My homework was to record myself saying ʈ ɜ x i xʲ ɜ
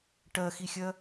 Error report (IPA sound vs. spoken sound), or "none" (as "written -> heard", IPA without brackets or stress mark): none